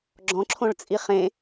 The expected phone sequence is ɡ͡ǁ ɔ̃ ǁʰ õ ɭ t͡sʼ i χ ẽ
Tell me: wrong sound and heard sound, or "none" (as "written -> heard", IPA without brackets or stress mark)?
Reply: none